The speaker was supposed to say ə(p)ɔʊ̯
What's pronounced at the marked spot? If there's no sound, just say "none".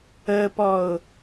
p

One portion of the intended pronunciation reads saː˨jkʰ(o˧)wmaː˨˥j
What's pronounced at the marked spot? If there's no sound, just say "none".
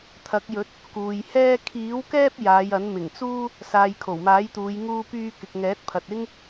o˨˩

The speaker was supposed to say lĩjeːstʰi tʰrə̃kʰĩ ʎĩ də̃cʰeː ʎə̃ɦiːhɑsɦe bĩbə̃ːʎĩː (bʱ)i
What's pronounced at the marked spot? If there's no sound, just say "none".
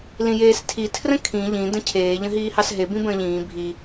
bʱ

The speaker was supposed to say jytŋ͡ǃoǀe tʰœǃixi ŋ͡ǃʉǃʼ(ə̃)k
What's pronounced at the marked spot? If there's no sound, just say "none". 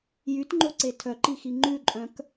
œ̃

